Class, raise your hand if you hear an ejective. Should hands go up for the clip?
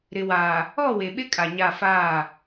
yes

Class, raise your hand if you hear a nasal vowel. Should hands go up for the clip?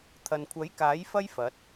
no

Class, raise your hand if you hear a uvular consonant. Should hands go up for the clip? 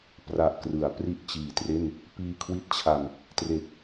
no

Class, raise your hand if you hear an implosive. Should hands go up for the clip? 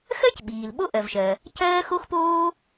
yes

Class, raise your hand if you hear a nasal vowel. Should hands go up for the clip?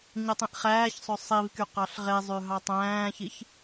yes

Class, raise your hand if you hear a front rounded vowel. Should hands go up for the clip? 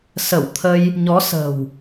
no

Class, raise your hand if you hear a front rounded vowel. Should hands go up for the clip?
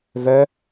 yes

